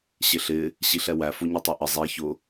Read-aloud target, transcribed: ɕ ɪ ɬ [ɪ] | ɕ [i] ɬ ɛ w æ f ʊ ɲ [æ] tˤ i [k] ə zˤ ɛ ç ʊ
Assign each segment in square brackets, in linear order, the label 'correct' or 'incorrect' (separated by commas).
correct, correct, incorrect, incorrect